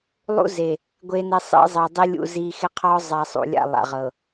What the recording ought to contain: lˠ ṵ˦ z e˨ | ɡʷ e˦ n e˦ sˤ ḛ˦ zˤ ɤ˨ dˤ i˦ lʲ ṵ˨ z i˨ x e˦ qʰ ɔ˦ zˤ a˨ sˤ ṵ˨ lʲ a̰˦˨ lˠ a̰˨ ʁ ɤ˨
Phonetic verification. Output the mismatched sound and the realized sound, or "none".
none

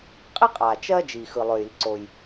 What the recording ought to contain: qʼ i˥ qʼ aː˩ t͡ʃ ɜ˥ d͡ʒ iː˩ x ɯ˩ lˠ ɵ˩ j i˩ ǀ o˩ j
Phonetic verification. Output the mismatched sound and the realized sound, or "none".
none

